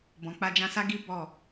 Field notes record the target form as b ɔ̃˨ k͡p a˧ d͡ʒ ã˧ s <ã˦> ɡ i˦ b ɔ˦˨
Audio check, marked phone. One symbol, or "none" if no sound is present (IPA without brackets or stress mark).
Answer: a˦